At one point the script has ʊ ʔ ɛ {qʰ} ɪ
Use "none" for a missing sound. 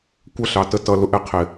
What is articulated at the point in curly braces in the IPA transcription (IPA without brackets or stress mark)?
qʰ